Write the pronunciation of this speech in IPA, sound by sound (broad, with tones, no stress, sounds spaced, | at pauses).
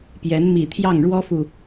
p j ɛ˧˥ n m i˨˩ t̪ʰ j ɑ˥˩ ŋ ɻ w ɔ˥ f u˨